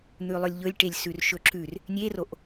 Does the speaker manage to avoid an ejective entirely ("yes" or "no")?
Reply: yes